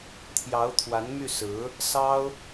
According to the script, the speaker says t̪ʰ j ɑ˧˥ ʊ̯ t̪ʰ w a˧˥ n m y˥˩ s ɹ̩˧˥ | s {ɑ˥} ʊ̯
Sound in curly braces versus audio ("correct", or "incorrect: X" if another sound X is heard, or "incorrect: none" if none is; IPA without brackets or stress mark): correct